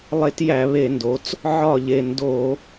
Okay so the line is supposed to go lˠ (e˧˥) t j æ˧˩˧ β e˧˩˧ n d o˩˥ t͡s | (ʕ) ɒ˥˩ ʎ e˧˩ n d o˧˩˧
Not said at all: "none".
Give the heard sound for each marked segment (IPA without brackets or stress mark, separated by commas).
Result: e˧˥, ʕ